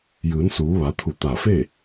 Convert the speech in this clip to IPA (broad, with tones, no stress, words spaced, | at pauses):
jɯː˩˧nsuː˩˧ʋa˩˧t̪ʰu˧˩ t̪a˧˩fe˥˨